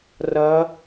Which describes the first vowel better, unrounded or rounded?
unrounded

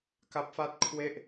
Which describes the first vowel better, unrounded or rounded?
unrounded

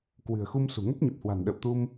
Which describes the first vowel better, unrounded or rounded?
unrounded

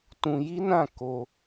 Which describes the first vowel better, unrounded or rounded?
rounded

